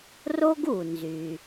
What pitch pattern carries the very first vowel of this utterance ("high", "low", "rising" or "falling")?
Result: high